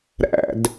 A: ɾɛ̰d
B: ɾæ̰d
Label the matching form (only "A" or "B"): B